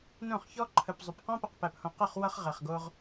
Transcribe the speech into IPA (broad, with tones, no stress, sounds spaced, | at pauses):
n õ˦˨ χ ç ɔ˦ ǃʰ ə˨ p zˤ ʏ˨ p q ɔ̃˦ p ə˨ q p æ˨ p h õ˨ q ə˦˨ χ w ʌ˧ χ ʁ ɛ˨ χ ɡ o˧ ʁ